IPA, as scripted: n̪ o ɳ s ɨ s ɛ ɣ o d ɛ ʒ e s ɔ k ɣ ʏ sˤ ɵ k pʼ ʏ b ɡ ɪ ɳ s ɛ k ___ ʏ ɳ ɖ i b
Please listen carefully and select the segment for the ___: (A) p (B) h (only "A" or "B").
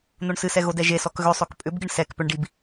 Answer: A